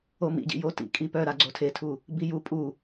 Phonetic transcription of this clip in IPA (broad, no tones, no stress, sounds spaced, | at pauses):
o m ḭ ɟ ḭ j o t ḭ kʼ i p œ ɾ a ɡ͡ǀ o tʰ e tʰ u | b i j u pʼ u